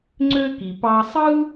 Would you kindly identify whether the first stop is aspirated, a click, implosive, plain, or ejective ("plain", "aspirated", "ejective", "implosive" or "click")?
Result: click